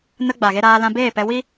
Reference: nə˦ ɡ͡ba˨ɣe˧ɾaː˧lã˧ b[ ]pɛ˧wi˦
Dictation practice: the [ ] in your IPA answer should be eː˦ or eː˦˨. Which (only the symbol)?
eː˦˨